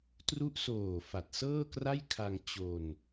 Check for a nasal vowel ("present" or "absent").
absent